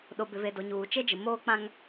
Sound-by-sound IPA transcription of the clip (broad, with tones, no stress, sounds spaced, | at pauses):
ɗ o˨ b ɪ˨ v e˨ d o˨ ɲ uː˨ t͡ʃ e˦ d͡ʒ ɪ˨ m oː˦ k͡p ã˦ ŋ